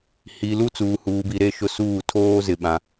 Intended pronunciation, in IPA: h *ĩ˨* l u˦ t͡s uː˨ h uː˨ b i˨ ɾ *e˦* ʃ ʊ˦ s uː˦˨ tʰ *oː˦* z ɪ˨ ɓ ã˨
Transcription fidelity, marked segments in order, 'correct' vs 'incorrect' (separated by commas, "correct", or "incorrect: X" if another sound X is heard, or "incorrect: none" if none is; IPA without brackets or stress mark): incorrect: i˨, correct, correct